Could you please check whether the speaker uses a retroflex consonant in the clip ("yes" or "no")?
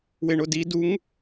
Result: yes